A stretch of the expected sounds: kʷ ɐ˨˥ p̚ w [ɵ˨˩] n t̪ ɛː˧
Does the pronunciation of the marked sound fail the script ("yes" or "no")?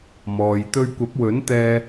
yes